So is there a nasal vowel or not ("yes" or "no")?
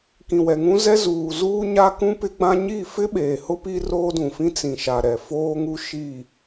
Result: yes